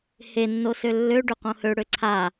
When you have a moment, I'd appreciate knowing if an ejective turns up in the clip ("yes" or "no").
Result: no